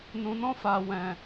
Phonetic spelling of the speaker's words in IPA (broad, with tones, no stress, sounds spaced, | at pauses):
n ũ˨ n ɔ̃˧ f a˨ w ɛ̃˨